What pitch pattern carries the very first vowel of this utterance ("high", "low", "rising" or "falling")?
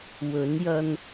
rising